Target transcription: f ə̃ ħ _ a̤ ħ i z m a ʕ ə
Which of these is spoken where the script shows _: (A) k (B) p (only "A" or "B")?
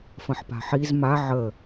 B